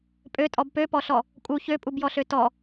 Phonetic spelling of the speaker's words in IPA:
pʼøtʼɔb pøpɔɬɔ | kʼu çøpʼubjɔɬø tɔ

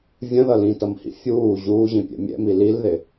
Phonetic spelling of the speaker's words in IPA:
vʲə̃ðʌ lĩtʌmhḭ fʲuː ʑuːʑĩpʲɛ̰ mʲɛ̰mi lilðɪ

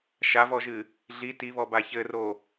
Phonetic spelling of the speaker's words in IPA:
ʃavɔʒɨ | ɮi tiβɔba çɘro

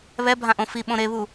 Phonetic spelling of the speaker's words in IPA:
βɛ bʱãʔõfi ɓõɾeβu

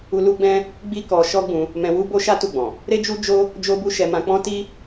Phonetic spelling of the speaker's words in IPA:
u˧ lu˦ɡ͡bɛ̃˦ | ɡ͡bi˦kɔ˧ ʃɔ˦ɡ͡bũ˧ | mɛ̃˧wu˦bo˦ʃa˦ tu˦˨ɡ͡bɔ̃˨ | ɾe˦d͡ʒu˦ d͡ʒo˦ | d͡ʒo˦bu˦ ʃɛ˧mã˧k͡pɔ̃˦ ti˦

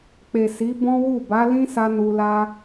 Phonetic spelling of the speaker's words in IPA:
k͡pe˨si˨˦ bɔ̃˦wu˦˨ ba˨˦lĩ˦sa˧ nu˧la˦

